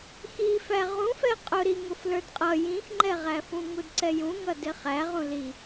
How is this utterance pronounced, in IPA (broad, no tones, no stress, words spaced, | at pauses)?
xifæ ʁũfɛ qʼʊɾiŋʊf lə˞dqʼʌ jĩxŋ͡ǃɛʁæfũ ŋudǀɛjũŋʌ dɪχæ ʁũli